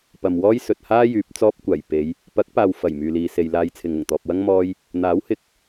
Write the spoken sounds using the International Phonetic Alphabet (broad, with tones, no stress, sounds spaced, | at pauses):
p ɐ˨ m w ɔː˥ j s ɵ˨ t̚ h aː˥ j yː˨˥ p̚ t͡s ɔː˥ p̚ kʷ aː˨˩ j p e˨˧ j | p ɐ˨˥ k̚ p aː˨ w f ɐ˨˩ j m yː˨ l iː˨ s e˨ j l aː˧ j t͡sʰ ɪ˨ ŋ ʊ˨˩ ŋ t̪ ɔː˨ p̚ w ɐ˥ ŋ m ɔː˥ j | n̪ aː˨˥ w h ɪ˨˥ k̚